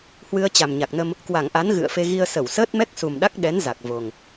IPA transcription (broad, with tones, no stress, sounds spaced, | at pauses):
h w ɨ˧ ə̯ t͡ɕ a˨˩ m ɲ a˨˩ k̚ n ə˧ m | k w a˧˩ ŋ ʔ a˨˦ n ɣ ɨ̰˧˨ ə̯ f e˧ ɣ i˧ ə̯ s ə˧˩ w s əː˦˥ t̚ m ɛ˦˥ k̚ s u˨˩ m ɗ a˦˥ k̚ ɗ ɛ˨˦ n z a˨˩ k̚ v o˨˩ ŋ